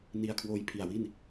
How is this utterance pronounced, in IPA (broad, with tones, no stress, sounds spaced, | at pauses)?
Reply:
n i˧ a̯ kʰ w oː˧ j pʰ i˨˩ a̯ w i˥˩ n